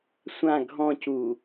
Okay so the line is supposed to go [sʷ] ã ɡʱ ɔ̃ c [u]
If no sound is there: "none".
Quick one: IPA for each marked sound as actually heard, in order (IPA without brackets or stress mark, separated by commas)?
sʷ, u